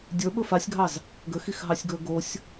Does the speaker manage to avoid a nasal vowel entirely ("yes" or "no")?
yes